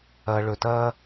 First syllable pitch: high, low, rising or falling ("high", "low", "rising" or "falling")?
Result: low